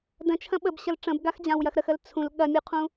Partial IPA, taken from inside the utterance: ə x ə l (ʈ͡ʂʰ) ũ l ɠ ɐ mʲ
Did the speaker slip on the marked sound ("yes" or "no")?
yes